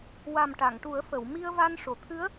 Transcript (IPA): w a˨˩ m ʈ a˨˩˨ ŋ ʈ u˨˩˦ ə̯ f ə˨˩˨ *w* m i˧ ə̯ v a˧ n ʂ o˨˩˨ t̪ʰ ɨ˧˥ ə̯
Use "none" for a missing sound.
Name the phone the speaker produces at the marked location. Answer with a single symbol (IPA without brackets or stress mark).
w